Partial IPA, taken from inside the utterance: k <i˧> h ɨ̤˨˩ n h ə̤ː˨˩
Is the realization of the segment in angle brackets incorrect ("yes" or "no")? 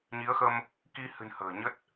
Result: no